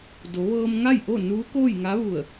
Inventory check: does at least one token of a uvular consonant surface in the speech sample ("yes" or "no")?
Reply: no